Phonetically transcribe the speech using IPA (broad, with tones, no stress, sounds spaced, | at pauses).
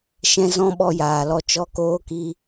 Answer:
ʃ ɛ̃˧ z ɔ̃˧ ɓ ɔ˧ j aː˨ l ɔ˧ t͡ʃ ɔ˦ k oː˦ k i˦